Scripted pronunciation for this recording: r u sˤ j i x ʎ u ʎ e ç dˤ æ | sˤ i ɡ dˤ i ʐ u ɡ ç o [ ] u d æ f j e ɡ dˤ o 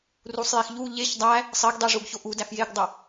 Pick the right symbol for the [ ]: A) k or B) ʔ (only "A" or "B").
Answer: B